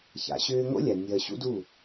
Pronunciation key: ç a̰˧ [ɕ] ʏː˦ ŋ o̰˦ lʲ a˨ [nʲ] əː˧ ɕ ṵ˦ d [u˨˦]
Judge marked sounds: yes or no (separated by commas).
yes, yes, no